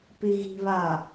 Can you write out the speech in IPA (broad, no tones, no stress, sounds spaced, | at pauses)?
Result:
p i ɣ i̤ β a